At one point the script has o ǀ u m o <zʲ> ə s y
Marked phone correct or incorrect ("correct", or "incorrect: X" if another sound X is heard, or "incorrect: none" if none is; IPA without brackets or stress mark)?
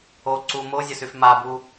correct